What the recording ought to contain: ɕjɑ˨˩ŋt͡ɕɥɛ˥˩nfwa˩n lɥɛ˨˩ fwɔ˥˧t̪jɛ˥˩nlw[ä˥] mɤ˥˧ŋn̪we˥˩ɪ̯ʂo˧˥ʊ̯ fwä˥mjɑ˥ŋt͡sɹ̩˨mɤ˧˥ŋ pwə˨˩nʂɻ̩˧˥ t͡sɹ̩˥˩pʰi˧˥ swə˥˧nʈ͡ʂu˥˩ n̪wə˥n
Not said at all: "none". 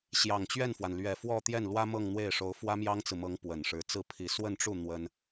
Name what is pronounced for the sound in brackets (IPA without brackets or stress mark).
ä˥